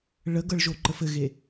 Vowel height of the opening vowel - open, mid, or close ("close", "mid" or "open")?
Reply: mid